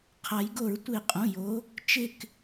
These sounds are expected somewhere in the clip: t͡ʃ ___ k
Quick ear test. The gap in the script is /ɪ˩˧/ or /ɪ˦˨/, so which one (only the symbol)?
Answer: ɪ˦˨